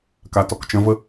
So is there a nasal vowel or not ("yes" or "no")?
yes